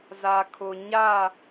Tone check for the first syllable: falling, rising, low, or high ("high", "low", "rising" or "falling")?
low